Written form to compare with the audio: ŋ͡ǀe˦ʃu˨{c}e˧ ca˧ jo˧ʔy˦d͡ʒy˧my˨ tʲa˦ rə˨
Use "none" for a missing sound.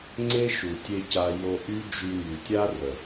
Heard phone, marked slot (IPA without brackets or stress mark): tʲ